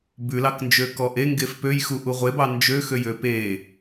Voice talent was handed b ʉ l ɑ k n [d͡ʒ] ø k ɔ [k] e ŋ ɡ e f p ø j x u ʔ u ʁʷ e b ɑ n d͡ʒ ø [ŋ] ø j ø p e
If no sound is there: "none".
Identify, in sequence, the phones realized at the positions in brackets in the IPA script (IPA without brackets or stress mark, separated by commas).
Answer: d͡ʒ, ʔ, x